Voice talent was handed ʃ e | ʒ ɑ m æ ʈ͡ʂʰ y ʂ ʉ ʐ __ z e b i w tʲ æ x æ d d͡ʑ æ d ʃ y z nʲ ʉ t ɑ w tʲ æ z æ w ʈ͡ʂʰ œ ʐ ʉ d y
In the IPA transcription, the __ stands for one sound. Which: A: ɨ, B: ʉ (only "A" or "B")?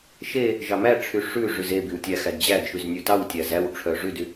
B